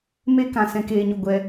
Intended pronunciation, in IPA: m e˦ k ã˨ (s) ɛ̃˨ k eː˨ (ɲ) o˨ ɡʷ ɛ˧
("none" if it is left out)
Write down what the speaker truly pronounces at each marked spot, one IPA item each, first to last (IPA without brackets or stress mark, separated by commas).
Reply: s, ɲ